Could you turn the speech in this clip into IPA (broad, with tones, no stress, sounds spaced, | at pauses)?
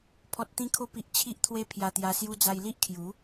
pʰ ɔ˨ t̚ t̪ ĩ˧ kʰ o˧ p i˨ ʔ t͡ɕʰ i˦ ʔ t̪ʰ w e˦ pʰ j a˧ t̪ j a˧ s j u˧ d͡z a˧ j l i˦ ʔ kʰ j u˨˦